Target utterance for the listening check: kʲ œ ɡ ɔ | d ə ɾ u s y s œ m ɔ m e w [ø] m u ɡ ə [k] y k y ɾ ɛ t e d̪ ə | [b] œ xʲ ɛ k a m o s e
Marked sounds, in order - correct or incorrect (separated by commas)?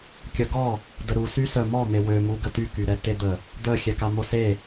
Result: correct, incorrect, incorrect